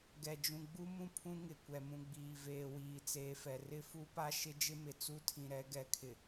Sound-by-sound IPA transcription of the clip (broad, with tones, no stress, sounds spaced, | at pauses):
ɡ ɛ˨ d͡ʒ ũ˨ ɡ͡b u˦ m ũ˦ pʰ ũ˦ ŋ ɪ˨ kʷ ɛ˨ m ũ˨ ɡ͡b iː˨ v eː˨ w iː˨ t͡s eː˨ f ɛ˨ r ɪ˦ f u˦ p a˦ ʃ ɪ˦ d͡ʒ ɪ˦ m ɪ˨ t͡s u˦ tʰ ĩ˨ ɾ ɛ˨˦ ɡ ɛ˨˦ kʰ ɪ˨